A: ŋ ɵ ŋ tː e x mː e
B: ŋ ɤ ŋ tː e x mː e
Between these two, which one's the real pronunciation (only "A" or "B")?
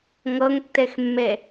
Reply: B